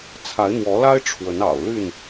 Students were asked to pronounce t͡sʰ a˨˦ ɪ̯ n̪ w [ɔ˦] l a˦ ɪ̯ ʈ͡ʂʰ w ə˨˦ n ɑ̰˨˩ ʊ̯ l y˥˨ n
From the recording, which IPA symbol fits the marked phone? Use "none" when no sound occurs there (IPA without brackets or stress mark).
ɔ˨˦